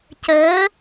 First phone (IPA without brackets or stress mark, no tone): c